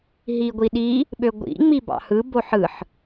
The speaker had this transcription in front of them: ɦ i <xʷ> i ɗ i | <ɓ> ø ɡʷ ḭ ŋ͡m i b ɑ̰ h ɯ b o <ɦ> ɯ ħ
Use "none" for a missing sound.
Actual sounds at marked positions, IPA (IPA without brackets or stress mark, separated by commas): ɡʷ, ɓ, ħ